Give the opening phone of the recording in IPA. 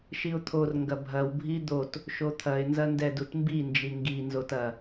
ʃ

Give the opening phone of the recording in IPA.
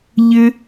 ʎ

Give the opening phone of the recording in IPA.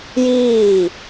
j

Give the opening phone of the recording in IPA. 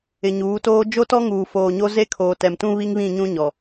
ɪ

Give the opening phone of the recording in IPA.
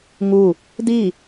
ŋ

